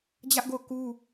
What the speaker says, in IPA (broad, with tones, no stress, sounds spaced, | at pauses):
d͡ʑ ä˦ ʔ ɡ o˦˨ ʊ̯ k u˦